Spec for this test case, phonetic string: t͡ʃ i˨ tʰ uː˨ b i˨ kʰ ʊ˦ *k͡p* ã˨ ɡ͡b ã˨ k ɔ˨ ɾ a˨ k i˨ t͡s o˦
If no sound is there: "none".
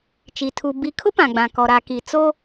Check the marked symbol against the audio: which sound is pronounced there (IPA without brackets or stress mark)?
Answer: p